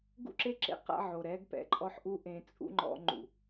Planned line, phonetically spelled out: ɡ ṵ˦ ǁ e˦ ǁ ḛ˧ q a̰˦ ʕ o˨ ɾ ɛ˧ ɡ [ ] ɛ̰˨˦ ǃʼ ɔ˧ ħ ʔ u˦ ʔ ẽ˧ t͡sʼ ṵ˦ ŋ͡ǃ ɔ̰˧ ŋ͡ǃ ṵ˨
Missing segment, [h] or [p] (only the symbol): p